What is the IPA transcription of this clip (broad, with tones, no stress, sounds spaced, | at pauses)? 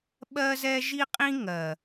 ɓ ɜ˦ z ɛ˦ ʒ i˦ qʼ ĩ˦ ŋ ɜ˨